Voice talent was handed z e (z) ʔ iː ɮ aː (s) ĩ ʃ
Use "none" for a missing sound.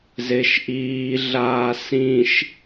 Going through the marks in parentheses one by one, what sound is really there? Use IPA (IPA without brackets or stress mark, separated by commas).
ʃ, s